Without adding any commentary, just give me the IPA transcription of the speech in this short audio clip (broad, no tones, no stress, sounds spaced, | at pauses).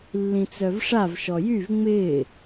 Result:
lː ĩ t͡s œ v ʂ a v ʃ ɔ j y v ŋ͡m ɪː